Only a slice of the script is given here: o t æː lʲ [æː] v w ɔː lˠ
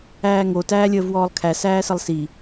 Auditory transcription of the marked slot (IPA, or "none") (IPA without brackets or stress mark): əː